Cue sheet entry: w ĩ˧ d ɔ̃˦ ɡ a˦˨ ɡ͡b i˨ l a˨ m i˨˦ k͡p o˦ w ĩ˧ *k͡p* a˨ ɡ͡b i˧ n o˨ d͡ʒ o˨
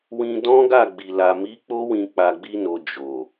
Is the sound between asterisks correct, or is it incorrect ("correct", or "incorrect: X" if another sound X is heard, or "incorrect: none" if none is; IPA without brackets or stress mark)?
correct